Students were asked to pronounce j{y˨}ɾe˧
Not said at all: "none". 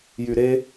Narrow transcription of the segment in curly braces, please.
y˨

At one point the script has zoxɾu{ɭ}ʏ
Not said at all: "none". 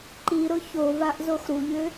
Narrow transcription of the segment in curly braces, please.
ʎ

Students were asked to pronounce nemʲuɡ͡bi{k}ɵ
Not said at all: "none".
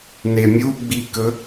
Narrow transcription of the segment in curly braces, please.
k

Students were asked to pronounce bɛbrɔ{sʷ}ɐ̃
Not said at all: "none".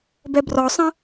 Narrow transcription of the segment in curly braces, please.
sˤ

